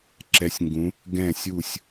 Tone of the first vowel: rising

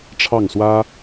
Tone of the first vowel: falling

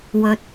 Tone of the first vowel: low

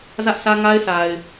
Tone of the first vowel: high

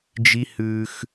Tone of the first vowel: high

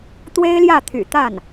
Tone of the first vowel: high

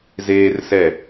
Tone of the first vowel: high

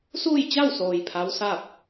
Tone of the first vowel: falling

